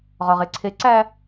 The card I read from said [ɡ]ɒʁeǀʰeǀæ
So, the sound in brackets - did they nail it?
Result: no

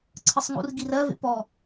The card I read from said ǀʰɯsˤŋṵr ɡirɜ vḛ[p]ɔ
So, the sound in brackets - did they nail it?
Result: yes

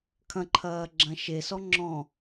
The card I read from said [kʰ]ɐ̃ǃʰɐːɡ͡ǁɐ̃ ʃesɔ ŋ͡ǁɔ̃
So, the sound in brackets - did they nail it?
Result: yes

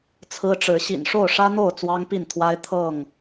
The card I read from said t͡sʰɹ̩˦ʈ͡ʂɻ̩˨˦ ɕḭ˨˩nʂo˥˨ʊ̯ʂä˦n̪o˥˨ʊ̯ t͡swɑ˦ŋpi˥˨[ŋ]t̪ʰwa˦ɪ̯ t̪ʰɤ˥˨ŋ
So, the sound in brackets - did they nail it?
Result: no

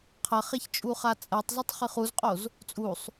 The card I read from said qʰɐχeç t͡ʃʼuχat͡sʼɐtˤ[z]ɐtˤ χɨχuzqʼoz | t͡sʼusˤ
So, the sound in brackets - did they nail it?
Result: yes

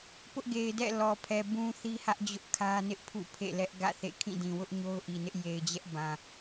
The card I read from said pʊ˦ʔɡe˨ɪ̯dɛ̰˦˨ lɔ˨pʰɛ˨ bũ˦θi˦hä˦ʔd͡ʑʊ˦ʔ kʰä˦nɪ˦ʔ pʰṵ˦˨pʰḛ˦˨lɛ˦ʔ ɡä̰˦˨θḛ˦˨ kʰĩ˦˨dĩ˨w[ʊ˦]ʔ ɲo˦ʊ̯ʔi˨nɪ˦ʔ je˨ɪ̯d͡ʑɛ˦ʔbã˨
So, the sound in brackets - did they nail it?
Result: yes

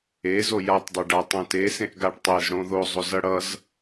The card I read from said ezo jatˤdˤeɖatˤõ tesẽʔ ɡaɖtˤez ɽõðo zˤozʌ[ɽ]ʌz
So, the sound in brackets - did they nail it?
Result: yes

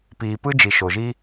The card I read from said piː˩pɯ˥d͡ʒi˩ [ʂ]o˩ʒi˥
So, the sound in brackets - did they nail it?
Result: no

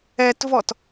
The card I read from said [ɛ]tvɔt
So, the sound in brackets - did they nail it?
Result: yes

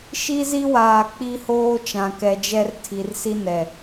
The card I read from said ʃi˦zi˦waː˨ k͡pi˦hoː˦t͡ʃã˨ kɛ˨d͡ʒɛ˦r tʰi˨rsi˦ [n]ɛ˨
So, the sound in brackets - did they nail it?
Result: yes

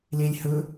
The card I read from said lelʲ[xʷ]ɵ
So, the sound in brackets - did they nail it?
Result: no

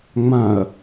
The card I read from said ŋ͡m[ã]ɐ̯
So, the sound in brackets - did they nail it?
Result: yes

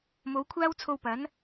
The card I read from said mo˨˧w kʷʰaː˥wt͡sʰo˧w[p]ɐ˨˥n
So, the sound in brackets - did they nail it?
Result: yes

